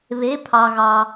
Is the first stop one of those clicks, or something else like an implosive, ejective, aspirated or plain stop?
aspirated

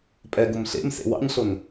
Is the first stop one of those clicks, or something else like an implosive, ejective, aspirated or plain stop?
ejective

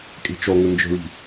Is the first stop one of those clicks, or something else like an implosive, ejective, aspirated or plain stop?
ejective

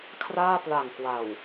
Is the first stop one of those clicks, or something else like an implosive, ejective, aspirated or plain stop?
aspirated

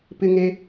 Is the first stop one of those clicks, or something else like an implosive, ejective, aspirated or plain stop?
plain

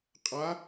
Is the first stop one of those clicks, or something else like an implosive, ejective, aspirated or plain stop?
ejective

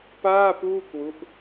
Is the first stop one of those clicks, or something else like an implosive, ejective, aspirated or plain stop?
plain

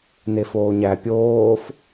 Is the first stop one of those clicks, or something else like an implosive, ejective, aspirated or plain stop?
plain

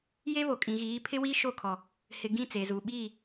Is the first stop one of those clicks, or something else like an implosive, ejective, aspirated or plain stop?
ejective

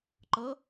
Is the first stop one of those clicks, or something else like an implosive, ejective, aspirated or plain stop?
click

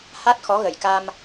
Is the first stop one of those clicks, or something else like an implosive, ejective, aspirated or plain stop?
plain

